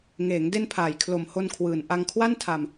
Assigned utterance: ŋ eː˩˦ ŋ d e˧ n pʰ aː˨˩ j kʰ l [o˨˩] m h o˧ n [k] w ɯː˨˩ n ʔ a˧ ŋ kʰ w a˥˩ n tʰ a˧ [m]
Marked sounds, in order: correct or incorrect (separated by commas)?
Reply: correct, incorrect, correct